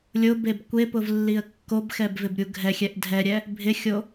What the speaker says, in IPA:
lʲ ʊ b e b kʷ e p ʊ v lː i ə̯ kː o b x ɛ b v ɪ b ɾʲ u ɡʱ ɛ xʲ ɛ ʔ dʱ ɛ ɾʲ ɛ | bʱ ɪ xʲ o

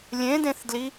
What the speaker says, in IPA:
lʲ ẽ d ẽ θ d l i

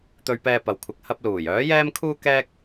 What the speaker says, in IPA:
t̪ ɵ˧ ɥ p ɛː˧ p ɐ˨ w kʷʰ ɪ˨ k̚ h ɐ˧ p̚ l uː˨˩ j œː˨˥ j ɛː˥ m kʰ uː˥ k ɛː˥ k̚

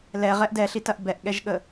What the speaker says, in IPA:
l ɛ ʁ ɛ ʔ d ɛ ɬ i t ɐ ʔ b ɛ ʔ ɠ ɛ ʒ ɠ ə

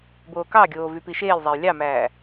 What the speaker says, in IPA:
b oː k ɑ ɡʲ oː v y p i ʃ eː lʲ zˤ æ j lʲ ɑ m æː

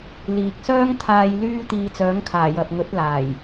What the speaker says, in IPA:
l iː˨ k̚ s œː˥ ŋ t̪ʰ aː˧ j l yː˥ t̪ iː˧ t͡s œː˨˥ ŋ kʰ aː˨˩ j ɐ˨ p̚ ŋ ɵ˨˥ t̚ l aː˨˩ j

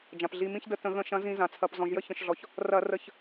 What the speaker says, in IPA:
d͡ʒ ã˩ p ɮ i˩˧˩ m ĩ˦ ç d ə˦˨ t ə̃˧˩˧ ɣ ə̃˧˩˧ ʃ ɐ̃˨˦ z ĩ˧˩˧ z ã˩ t͡sʰ ɐ˩˧˩ p z ɔ̃˩ ʒ j ə˦ ç ə̃˩ ʃ ɮ ɔ˩ ç | r ɐ˧˩˧ r ə˧˩˧ ç

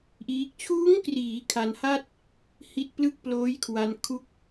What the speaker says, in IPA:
ʔ iː˦˥ k̚ t͡ɕʰ uː˦˥ ŋ k r iː˩˦ kʰ a˧ n h a˥˩ t̚ | h i˦˥ t̚ p l ɯ˥˩ k̚ p l oː˦˥ j kʰ w a˧ n kʰ u˥˩ k̚

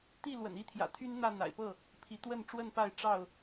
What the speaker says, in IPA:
t̪ i˥˨ l w ə̰˨˩ n i˥˨ t̪ʰ j ä̰˨˩ t̪ʰ y˦ n n̪ ä˥˨ n̪ a̰˨˩ ɪ̯ p ɤ˥˨ | pʰ i˨˦ t̪ w ə˥˨ n ʈ͡ʂ w ə˥˨ n p a˥˨ ɪ̯ ʈ͡ʂ ɑ˥˨ ʊ̯

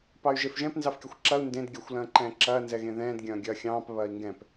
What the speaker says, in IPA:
p ɑ y̯ ʒ e f ʒ ɛ̃ p n z ɑ f kʲ ɐ xʷ ǁ ɐ u̯ n d ẽ d ɡʲ a xʷ l ɐ̃ː ǃ ɛ̃ː ǁ ɐː n z ɛ ɣ ẽ ð ɛ̃ː d ɡʲ ɐ̃ː ɡʲ ɐː xʲ ɑ̃ː p β ɐː i̯ ŋ ɡ ɛ̃ p

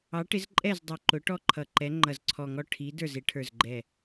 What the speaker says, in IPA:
ɑ˨˥ ʈ ɪ˨˥ z ǃʼ ɛ˥˩ z dˤ u˧˩ ǃ ʊ˨˥ ʈ ɔ˥˩ ǃʰ ʌ˧˩ ǃ ɛ˨˥ ŋ͡ǃ ʌ˧˩ z ǀʰ ɔ˧˩ ŋ ɔ˥˩ ʈʰ i˨˥ d ə˞˥˩ z ɪ˨˥ ʈʰ ə˞˧˩ z ɡ͡ǃ ɛ˧˩

